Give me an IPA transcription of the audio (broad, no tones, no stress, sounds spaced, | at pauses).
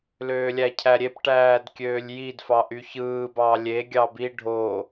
l øː lʲ æ cʰ æ ɾʲ e p ʈ æː d kʲ øː lʲ j i d f ɑ ʔ y ç ɯː b ɑ lʲ e ɡʲ ɑ b i ɖʱ o